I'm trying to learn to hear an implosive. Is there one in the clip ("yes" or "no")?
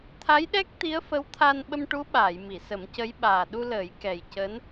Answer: yes